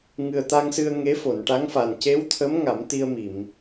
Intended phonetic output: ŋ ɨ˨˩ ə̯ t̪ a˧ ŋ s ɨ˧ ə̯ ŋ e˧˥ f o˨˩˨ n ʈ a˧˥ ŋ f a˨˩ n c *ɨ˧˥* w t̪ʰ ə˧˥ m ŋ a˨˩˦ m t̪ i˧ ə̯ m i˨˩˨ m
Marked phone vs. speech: incorrect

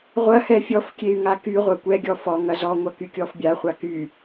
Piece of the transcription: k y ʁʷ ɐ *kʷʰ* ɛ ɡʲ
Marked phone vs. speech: incorrect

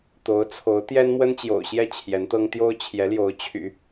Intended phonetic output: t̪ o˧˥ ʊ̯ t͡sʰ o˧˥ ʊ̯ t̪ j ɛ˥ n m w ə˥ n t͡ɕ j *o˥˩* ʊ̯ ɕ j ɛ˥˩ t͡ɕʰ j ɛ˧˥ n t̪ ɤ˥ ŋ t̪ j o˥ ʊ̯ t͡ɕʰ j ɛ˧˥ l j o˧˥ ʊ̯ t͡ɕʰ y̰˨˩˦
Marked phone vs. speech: incorrect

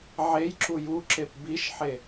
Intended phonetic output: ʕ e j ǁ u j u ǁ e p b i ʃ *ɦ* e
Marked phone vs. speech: incorrect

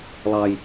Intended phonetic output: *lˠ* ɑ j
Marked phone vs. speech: correct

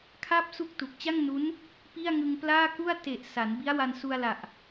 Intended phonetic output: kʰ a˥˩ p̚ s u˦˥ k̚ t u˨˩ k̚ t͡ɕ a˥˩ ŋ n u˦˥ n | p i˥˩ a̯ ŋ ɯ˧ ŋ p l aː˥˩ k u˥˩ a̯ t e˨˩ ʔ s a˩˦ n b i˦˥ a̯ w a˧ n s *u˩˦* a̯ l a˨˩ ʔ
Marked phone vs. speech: incorrect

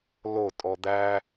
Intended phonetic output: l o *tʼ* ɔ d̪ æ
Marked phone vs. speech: correct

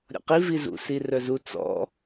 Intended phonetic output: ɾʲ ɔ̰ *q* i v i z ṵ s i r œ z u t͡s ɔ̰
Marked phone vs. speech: correct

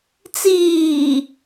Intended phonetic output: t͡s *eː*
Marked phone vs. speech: incorrect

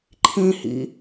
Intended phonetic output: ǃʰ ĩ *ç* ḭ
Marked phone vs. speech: incorrect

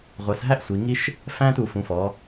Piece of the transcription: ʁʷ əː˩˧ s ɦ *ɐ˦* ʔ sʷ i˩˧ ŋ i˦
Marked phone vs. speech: incorrect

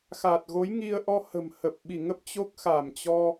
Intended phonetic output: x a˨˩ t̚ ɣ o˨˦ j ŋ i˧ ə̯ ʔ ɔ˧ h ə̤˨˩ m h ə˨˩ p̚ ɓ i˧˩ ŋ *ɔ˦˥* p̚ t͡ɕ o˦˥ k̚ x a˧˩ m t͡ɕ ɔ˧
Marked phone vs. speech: incorrect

